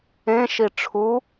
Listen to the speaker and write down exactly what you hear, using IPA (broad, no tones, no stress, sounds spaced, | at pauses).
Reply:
ẽ ʃ i ʈ͡ʂʰ u